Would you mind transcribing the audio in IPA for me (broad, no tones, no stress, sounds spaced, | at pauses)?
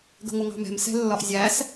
ɡ ə̤ ŋʷ ə ŋ ɑ̤ m ɛ̤ m s ɛ̤ lː ɒ ʔ zʲ æ s